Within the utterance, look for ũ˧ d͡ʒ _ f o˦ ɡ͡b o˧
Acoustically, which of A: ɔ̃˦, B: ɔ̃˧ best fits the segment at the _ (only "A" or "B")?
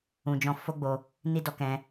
A